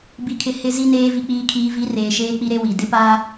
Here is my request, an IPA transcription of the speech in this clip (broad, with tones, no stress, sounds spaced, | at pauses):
b i˨ kʰ ɪ˨ h ɪ˨ z i˨ n eː˨ v i˨ k͡p iː˨ kʰ iː˨ v i˨˦ r eː˨ ʃ eː˦ k͡p i˦ ɾ e˦ w i˨ d ɪ˦ p aː˦